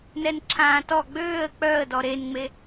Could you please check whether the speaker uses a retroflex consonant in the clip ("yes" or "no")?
no